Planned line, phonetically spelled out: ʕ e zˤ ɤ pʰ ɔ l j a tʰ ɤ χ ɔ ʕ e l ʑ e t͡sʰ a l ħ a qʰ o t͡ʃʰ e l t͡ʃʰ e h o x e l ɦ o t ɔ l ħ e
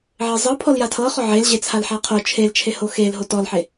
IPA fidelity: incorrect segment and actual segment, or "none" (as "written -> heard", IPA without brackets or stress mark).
none